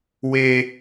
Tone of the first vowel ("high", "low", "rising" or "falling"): high